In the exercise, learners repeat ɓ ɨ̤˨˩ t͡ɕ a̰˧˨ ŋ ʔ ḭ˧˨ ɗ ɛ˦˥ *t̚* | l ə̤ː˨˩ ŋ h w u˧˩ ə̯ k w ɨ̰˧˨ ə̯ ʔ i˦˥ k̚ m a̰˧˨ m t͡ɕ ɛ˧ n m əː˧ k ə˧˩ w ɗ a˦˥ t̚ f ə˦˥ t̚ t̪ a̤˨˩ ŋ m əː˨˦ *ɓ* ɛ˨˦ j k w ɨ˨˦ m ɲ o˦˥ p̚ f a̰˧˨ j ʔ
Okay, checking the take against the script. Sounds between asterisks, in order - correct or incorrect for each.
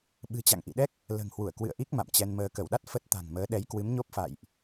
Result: incorrect: k̚, incorrect: ɗ

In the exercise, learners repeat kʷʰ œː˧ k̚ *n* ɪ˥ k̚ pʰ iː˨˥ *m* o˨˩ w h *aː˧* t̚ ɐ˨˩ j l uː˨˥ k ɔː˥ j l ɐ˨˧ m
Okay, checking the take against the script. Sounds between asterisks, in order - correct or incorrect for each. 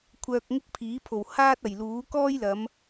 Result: incorrect: ŋ, incorrect: pʰ, incorrect: aː˥

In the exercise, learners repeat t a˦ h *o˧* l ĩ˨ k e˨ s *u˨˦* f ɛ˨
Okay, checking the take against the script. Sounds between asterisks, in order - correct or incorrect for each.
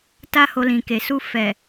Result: correct, incorrect: u˧

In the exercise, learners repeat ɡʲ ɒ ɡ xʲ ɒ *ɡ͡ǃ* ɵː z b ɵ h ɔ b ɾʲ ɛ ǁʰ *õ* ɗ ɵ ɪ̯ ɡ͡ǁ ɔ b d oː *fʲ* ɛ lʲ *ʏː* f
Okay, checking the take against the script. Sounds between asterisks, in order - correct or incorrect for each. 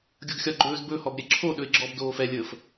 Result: correct, incorrect: o, incorrect: f, incorrect: əː

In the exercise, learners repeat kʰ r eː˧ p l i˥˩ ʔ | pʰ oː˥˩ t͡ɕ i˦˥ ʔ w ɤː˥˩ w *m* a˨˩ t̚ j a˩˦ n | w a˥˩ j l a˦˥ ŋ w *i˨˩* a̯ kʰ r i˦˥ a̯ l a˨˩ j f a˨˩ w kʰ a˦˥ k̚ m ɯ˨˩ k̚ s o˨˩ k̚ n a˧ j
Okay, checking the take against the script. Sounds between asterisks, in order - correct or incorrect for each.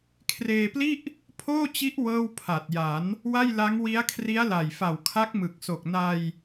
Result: incorrect: pʰ, incorrect: i˦˥

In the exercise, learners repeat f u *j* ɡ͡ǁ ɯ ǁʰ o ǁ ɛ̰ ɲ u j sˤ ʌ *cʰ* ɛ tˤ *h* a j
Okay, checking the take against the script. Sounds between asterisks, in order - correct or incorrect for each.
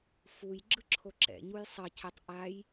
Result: correct, correct, incorrect: ʔ

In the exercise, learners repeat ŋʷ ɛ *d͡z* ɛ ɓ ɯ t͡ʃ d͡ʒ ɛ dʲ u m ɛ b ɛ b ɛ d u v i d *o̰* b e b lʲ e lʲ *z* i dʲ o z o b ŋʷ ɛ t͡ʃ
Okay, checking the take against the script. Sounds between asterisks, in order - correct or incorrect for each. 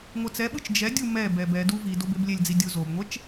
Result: incorrect: t͡s, incorrect: o, incorrect: d͡z

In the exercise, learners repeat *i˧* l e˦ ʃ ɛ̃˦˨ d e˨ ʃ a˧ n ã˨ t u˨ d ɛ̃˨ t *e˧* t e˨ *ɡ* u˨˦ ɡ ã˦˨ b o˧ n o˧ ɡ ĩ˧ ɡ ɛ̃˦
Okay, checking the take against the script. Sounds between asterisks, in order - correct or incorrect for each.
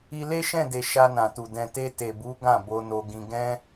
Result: correct, correct, incorrect: b

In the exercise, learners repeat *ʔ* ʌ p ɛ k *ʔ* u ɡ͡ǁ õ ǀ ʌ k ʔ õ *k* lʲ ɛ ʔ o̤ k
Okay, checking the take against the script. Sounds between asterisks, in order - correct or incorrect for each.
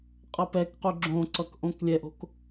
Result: incorrect: qʼ, incorrect: q, correct

